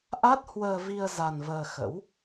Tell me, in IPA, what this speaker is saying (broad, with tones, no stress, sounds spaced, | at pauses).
ʔ a˦˥ t̚ h w əː˧ v i˧ ə̯ z a˧ n v əː˧ x ə̰˧˥ w